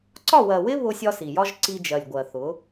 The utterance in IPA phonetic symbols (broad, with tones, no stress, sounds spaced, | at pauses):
ǀ ɒ˦˨ w ɜ˨ w ɪ˦ β ʊ˦ sʲ ɒ˦ s i˨ j ɒ˧ ʒ ǀ i˧ d͡ʒ ɜ˨ lʲ ɡʷ ɜ˨ θ ʊ˨˦